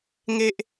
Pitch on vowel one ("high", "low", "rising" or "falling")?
high